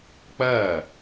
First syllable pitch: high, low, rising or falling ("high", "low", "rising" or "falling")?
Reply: falling